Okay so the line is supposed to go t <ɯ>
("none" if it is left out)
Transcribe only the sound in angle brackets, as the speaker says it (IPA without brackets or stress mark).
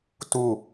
u